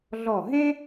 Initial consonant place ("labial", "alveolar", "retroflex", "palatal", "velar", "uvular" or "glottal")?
alveolar